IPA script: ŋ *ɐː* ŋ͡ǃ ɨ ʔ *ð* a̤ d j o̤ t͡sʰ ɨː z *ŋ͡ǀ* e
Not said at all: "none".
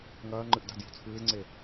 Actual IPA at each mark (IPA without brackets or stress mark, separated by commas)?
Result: ɐː, d, ŋ͡ǀ